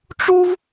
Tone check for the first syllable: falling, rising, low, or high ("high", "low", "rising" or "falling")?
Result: high